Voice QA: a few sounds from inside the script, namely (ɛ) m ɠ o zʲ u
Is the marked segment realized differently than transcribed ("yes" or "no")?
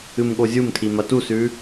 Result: yes